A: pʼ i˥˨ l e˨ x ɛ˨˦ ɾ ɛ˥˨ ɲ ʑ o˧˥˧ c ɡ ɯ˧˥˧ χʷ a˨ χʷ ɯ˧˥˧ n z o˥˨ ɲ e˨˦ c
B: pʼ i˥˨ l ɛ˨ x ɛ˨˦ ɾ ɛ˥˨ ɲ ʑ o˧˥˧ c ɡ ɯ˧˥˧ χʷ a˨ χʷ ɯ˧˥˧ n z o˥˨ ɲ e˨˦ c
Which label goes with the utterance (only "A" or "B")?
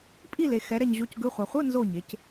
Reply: A